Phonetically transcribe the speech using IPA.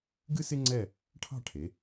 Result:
ɡ ɨ˥ s ɪ˥ ŋ͡ǀ ɛ˥˧ | ʈʰ ɑ̤˥˧ ʈʰ e˩˧

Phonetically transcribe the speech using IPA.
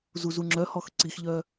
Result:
z u z u ŋ͡ǁ œ h ɔ x ǀ i x ʎ œ

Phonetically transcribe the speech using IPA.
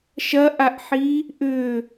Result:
ʃ ɐ ʔ a ʔ ħ i | ʔ ʏ

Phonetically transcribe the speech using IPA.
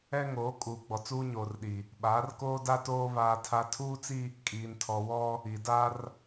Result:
ɛ˦ ŋ oː˨˦ kʼ uː˨ ɡ͡b ɔ˨ t͡s uː˦ ɲ oː˨ r ɗ i˨ | ɓ aː˨˦ r k oː˦ d a˦ t oː˦ β aː˦ tʰ a˦ tʰ uː˦ t͡s i˦ | kʼ iː˨ n tʰ ɔ˨ w ɔ˦ | i˨ d a˦ r

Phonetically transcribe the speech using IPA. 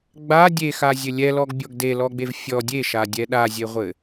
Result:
ɡ͡b a dʲ e x a zʲ ɘ lʲ ɛ l ɔ ɡ bʲ ɔ ɡ d e l ɔ ɡ͡b e v fʲ ɔ dʲ e ʃ a dʲ ɛ ɗ a zʲ e ʁʷ ɘ

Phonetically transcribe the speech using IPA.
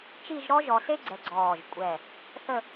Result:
t͡ʃ i˥˧ ʒ ɾ ɔ˥ ʒ ɔ˧ s e˥ ɡ͡ǀ ɛ˧ ɡ͡ǀ ɔː˧˩ ʒ kʷʼ ɛ˧˩ | θ ə˥˧

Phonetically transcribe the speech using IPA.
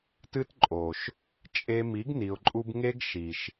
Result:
t ɨ˦ t ǃʼ o˨ ʃ | t͡ʃʼ e˦ m i˨˦ ɡ n i˨ ʊ̯ ǃʼ u˧ b ŋ e˦ ɡ ʃ i˨ ʃ

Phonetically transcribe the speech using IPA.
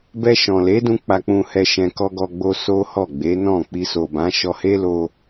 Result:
b ɛ˧ ʃ ɔ̃˨ l e˨˦ d ũ˧ k͡p a˧ k͡p ũ˧ h ɛ˧ ʃ ɛ̃˧ k ɔ˧ ɡ ɔ˧ ɡ͡b o˧ s o˦ h ɔ˦˨ ɡ͡b e˨˦ n ɔ̃˦˨ k͡p i˧ s o˨ b ã˨˦ ʃ ɔ˧ h e˦ l o˧

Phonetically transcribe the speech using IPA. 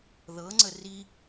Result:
ð ɤ ŋ͡ǀ ə r i

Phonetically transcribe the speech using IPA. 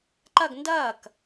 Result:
ǃ ʌ ɡ n d ʌː k

